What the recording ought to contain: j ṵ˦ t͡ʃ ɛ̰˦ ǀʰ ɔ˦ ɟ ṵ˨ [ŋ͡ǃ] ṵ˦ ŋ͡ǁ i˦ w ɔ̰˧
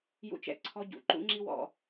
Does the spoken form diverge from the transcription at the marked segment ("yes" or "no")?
yes